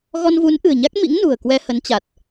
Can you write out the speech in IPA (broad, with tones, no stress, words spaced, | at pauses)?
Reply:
ɣɔ˧nvu˨˦nʔɨ̤˨˩ə̯ɲa˦˥k̚ mḭ˧˥ŋnṳ˨˩ə̯ kwɛ˧hə˨˦nt͡ɕa˨˩t̚